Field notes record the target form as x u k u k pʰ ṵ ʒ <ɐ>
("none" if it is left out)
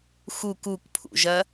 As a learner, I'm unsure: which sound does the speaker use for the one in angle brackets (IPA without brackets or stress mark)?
ɐ